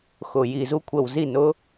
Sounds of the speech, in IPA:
x ʊ˧˩˧ j i˧˩˧ z u˥ kʷʰ ə˧˩˧ w z i˥˩ n ʊ˥

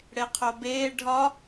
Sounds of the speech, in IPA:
ɽ e qʰ o b eː ɖʱ ɒ

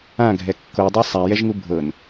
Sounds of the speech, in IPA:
ã ɡʱ ɛ kː o dˤ o sˤ a j ɛ ʒ ŋ u bʱ ɤ n

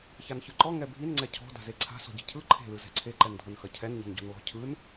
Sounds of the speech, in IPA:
ç a n ç ɯ ǃ ɔ ŋ ɛ bʱ i n ŋ͡ǀ ɛ cʰ ɔ̤ d a̤ z e ǀʰ a̤ s ɔ̤ ɟ e̤ cʰ ɯ ǃʰ e̤ l ɯ z ɛ̤ ǀʰ e ǃ ɛ n dʱ o n x ɐ cʰ ɛ n ɲ e̤ n ɟ ɔ̤ n l ɔ̤ cʰ ɯ n

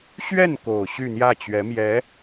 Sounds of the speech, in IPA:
ɕ ɥ ɛ˥˩ n k o˨˩ ʊ̯ ɕ y˥˧ n̪ j ä˥˩ t͡ɕ ɥ ɛ˧˥ m j ɛ˧˥

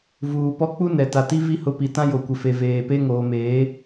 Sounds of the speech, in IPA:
v uː˨ p ɔ˦ k͡p u˦ n ɛ˨ t a˨ t i˦ v i˦ h ʊ˦ p i˨ t ã˦ j o˨ kʷ ɪ˨ f e˨ v eː˨ p e˦ ŋ oː˨ m eː˨˦

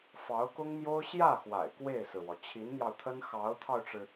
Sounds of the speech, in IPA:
f ɑ˧˥ ʊ̯ k ʊ˥ ŋ m j o˥ ʊ̯ ɕ j ä˥˩ x w a̰˨˩ ɪ̯ k w e˥˩ ɪ̯ s ɹ̩˩ w ɔ˩ t͡ɕʰ i˧˥ n n̪ j ɑ˧ ʊ̯ t̪ʰ ə˥ n x ɑ˧˥ ʊ̯ t̪ʰ ɑ˧ ʊ̯ ʈ͡ʂ ɻ̩˩

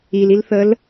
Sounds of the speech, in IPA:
i l i l θ ə l

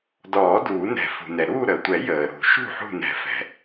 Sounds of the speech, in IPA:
d ɔː˨˩˦ d uː˨˩˦ n ɛ̤˨˩˦ f ṳ˩ n ɛ˩ ɾ uː˥˨ ɾ əː˩ tʷ ɛ˨˩˦ j əː˩ ɾ ṳ˨˩˦ ʃ ṳ˥˨ ħ ṳ˥˨ n ɛ̤˨˩˦ f ɛ̤˩

